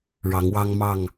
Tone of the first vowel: rising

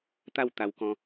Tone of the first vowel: falling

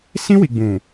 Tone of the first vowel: high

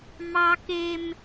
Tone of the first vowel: high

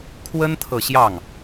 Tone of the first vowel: high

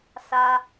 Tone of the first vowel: high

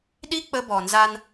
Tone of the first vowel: high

